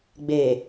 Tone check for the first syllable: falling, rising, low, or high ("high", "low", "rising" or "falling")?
low